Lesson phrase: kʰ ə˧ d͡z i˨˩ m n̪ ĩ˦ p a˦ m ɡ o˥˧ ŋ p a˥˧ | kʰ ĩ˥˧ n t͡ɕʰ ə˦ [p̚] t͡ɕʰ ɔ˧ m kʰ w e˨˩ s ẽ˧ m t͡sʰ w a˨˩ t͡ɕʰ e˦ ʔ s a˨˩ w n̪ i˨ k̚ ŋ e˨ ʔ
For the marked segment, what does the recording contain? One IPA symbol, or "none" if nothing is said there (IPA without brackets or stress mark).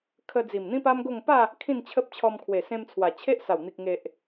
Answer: p̚